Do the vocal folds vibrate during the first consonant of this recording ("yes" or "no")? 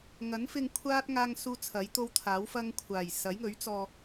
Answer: yes